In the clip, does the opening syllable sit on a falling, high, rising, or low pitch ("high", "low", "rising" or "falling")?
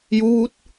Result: rising